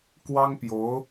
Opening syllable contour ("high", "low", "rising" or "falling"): high